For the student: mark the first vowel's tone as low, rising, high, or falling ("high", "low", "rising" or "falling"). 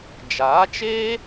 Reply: rising